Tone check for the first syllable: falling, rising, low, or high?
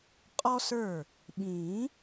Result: high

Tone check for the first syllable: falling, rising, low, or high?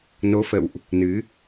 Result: rising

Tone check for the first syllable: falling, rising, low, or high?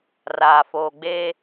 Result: low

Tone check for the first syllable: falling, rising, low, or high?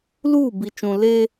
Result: falling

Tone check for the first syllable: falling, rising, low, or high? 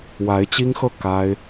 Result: rising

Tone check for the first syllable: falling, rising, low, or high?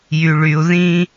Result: low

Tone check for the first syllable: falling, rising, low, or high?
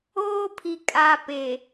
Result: high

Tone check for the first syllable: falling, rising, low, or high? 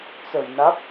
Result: low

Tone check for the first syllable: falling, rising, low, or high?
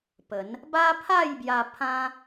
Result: rising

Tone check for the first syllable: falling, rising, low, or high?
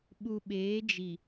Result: low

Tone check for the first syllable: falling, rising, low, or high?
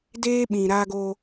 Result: high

